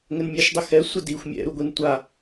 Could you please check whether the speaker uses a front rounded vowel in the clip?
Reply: no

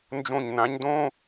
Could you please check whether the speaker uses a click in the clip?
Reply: no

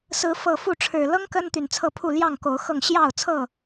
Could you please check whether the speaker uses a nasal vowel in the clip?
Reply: no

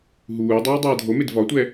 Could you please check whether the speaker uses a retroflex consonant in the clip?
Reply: no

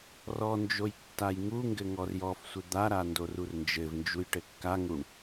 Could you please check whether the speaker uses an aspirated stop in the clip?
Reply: no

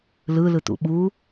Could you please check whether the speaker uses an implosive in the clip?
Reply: yes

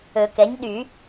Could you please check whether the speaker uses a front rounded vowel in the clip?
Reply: yes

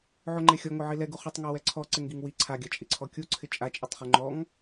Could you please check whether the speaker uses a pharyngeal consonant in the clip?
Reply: yes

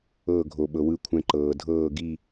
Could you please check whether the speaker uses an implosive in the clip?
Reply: yes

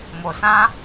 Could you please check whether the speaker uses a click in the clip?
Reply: no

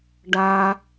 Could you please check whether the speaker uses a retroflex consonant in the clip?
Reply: yes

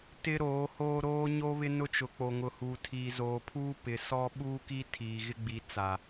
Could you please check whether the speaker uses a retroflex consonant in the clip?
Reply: no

